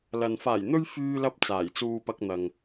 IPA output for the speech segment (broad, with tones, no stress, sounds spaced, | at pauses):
l ɐ˨ n f aː˨˩ j n̪ ɵ˧ ɥ f yː˧ l ɐ˧ p̚ t͡s aː˨˩ j t͡s uː˨ p ɐ˧ k̚ n̪ ɐ˨ ŋ